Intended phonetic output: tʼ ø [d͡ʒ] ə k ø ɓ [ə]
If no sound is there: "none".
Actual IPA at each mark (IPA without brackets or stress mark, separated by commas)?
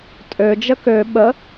d͡ʒ, ə